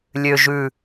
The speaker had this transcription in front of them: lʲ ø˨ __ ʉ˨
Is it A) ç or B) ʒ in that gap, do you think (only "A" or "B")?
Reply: B